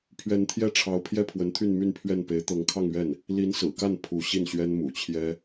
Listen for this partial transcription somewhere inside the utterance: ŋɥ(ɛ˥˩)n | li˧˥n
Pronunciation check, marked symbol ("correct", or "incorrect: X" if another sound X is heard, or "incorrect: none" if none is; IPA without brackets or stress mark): correct